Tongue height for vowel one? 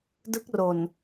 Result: high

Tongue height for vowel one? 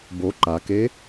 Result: mid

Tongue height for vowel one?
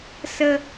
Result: mid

